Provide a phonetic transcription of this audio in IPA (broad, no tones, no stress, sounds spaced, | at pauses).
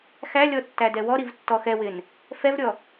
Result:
x æ lʲ ɔ tː æ d ɛ w ɔ ɾ i v tː ɔ x ɛ w ɪ n | f ɛ v ɾʲ ɔ